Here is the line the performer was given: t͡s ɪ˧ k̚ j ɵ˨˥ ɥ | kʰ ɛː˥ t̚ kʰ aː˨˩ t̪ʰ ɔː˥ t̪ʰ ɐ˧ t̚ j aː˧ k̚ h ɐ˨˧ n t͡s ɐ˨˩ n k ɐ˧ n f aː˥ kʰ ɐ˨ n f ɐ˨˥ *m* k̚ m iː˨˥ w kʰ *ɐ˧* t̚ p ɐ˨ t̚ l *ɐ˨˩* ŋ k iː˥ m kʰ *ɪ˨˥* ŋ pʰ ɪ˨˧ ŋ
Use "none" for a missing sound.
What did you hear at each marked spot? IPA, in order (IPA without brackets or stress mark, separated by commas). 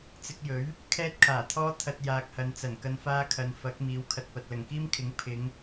none, ɐ˨, ɐ˨˩, ɪ˨˥